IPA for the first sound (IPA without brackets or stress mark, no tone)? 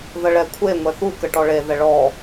ð